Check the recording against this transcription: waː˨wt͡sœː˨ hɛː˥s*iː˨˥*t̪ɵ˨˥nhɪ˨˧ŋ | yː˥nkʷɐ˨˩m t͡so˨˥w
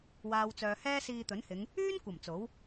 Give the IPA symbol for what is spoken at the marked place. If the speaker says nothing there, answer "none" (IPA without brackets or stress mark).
iː˧